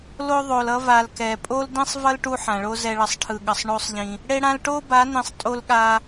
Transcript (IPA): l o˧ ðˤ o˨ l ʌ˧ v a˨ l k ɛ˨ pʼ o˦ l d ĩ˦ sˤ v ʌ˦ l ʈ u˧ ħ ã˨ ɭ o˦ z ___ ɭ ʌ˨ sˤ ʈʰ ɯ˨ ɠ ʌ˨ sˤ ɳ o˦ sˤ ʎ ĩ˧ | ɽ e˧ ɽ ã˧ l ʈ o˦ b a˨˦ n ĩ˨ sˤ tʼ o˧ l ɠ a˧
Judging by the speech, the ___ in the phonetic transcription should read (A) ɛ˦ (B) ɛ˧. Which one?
B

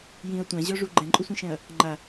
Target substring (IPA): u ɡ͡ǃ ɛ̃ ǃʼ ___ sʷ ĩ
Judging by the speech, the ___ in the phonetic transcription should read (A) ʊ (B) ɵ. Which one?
A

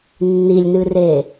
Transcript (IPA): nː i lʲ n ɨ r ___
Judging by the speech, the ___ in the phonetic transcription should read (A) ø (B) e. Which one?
B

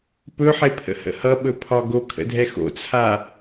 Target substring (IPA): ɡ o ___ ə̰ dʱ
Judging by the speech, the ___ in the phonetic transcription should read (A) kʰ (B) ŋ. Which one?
A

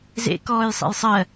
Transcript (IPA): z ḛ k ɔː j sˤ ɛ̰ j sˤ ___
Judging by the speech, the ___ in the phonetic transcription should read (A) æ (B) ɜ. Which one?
B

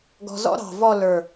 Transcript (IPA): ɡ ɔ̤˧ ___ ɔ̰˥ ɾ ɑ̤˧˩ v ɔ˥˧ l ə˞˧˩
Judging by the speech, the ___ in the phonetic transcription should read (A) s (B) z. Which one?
B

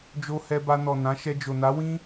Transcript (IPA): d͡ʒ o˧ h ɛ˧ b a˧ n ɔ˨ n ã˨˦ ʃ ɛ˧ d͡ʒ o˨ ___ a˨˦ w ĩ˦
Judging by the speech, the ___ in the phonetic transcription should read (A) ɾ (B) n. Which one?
B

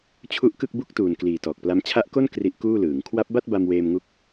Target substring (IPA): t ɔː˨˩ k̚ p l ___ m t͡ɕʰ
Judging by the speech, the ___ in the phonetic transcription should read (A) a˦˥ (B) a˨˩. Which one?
A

